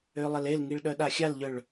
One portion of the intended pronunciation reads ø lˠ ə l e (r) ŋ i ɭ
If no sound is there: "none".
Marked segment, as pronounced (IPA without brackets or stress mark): l